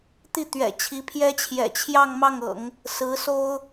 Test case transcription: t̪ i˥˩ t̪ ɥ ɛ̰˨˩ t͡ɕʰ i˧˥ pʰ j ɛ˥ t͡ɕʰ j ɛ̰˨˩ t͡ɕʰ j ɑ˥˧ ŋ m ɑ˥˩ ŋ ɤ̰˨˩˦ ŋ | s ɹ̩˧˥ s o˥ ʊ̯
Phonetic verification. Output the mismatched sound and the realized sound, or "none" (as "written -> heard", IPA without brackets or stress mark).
none